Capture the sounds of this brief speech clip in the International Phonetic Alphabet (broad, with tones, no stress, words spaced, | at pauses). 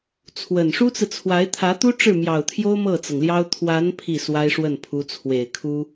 t͡sʰwə˨˩n ʂu˥t͡sɹ̩˨t͡sʰwa˧˥ɪ̯ t̪ʰä˧˥t̪u˥ ʈ͡ʂɻ̩˥˩mjɑ˨˩ʊ̯t̪ʰjo˥ʊ̯ mɤ˥˩t͡sɤ˩ŋljɑ˥ʊ̯ t̪ʰwa˧˥n pʰi˥˩swa˥ɪ̯ʂwə˥˩npʰu˧˥ t͡sʰwe˨˩ɪ̯kʰu˥